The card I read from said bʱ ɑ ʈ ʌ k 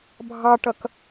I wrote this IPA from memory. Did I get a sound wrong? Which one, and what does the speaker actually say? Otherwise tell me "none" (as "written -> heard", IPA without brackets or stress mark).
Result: none